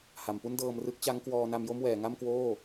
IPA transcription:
h a˩˦ m p u˥˩ n d ɤː˧ m r ɯ˦˥ k̚ t͡ɕ a˦˥ ŋ k w ɔː˧ n a˧ m j o˥˩ m w ɛː˩˦ ŋ a˥˩ m k w oː˥˩

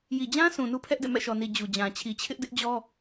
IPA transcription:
j i˨ d͡ʑ ã˦ s ũ˨ n u˦ pʰ ɛ˦ ʔ d ɛ̰˦˨ m ɛ̰˦˨ ʃ ɔ˨ n i˨ d͡ʑ u˨ d͡ʑ ã˨ t͡ɕʰ i˨ t͡ɕʰ ɪ˦ ʔ d ɪ˦ ʔ d͡ʑ ɔ˦

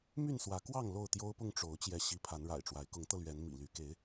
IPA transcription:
m y˥˨ n s w ä˨˦ k w ɑ˥˨ ŋ l o˥˨ ʊ̯ t̪ j o˦ ʊ̯ p ʊ˥˨ ŋ ʈ͡ʂ o˨˦ ʊ̯ t͡ɕ j ɛ˨˦ ɕ i˨˦ pʰ a˨˦ n ɻ a̰˨˩ ɪ̯ ʈ͡ʂ w a˨˦ ɪ̯ k ʊ˨˦ ŋ t̪ ɤ˧ l ɥ ɛ˨˦ n m ḭ˨˩ l y˨˦ k e˨˦ ɪ̯

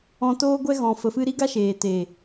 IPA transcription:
ɔ̃˧ t oː˦ ɡʷ ɛ˦ ɣ ɔ̃˨ f ə˨ f ɨ˧ ɾ i˦ ɡ a˦ ʃ eː˨ t eː˨

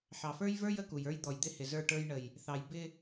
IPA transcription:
ħ ɑ˨ f ə˞˦ j v ə˞˦ j ə˦ k u˨ j ə˞˦ j d̪ ɔ˨ j d̪ ɪ˦ h ɪ˨ z ə˞˦˨ ʈ ə˞˦ j ɳ ə˨ j | θ ɑ˨ j b ɪ˦

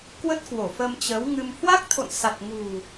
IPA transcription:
k w ə˦˥ t̚ k w o˧˩ f əː˧ m t͡ɕ ə˨˦ w ŋ ɨ˧ m h w a˦˥ k̚ t̪ʰ o̰˧˨ n s a˨˩ t̚ ŋ ṳ˨˩

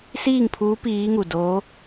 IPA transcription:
s iː˥˨ ŋ pʰ uː˧˥ p iː˧˥ ŋ u˧˩ d oː˧˥

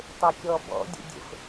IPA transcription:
tˤ e kʲ ɔ b ɔ̰ dʲ ḛ dʲ ə̰ f

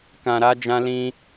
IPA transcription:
k ã˨ ɾ a˧ d͡ʒ ã˧ l ĩ˧

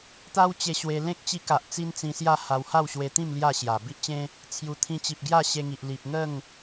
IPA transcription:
t̪ a˦ w t͡ɕ e˧ ɕ w e˧ l ẽ˦ k̚ t͡ɕ i˧ k a˨ ʔ t͡s i˦ n t͡s ĩ˧ s j a˥˧ h a˧ w h a˥˧ w ɕ w e˧ t̪ ĩ˥˧ m l j a˥˧ ɕ j a˨˩ b i˦ ʔ t͡ɕ ẽ˦ | t͡sʰ j u˨˩ t̪ʰ ĩ˧ t͡ɕ i˨ p̚ ɡ j a˥˧ ɕ e˧ ŋ i˨ ʔ l i˨ p̚ ŋ ə˥˧ ŋ

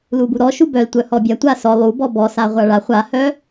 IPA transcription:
l u b u ɾ ɔ ʃ u b œ l tʷ œ h ɔ bʲ a tʷ a s ɔ lˠ u b ɔ b ɔ s a ʁʷ a ɭ a χʷ a h œ

